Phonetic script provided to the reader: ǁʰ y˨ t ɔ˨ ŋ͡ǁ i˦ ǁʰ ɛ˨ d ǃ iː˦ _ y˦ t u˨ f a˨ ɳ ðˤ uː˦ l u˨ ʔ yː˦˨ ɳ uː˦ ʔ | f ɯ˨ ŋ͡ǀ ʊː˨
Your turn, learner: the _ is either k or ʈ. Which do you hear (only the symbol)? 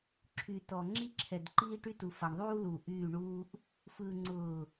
ʈ